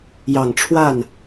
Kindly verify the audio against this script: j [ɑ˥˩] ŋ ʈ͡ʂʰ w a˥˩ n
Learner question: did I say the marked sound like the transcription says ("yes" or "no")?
no